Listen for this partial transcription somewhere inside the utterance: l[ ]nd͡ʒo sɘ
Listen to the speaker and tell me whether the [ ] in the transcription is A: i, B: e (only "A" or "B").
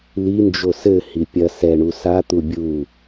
A